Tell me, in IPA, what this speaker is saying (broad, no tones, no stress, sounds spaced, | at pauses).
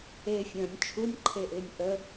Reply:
e fʲ ə̃ː nʲ t͡ʃʰ u nʲ ǃʰ e ʔ ɪː nʲ ʔ ə